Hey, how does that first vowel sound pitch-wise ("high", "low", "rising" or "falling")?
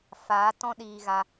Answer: rising